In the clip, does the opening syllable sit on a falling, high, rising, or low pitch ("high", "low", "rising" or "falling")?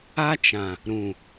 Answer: high